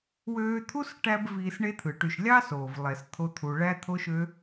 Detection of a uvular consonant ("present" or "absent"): absent